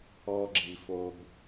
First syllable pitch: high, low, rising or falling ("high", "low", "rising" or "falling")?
low